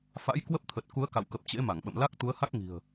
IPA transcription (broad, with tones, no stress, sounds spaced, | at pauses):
f a̰˧˥ j k w ə˦˥ p̚ t̪ʰ ə˨˩ t̚ k u˨˦ ə̯ k a̰˧˨ w k ə˨˩ p̚ t͡ɕ ḛ˧˥ m a˧˩ ŋ ɓ ə̰˧˨ m l a˦˥ k̚ t̪ u˨˦ ə̯ h a˦˥ k̚ ŋ i̤˨˩ ə̯